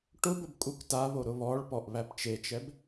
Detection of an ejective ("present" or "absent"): present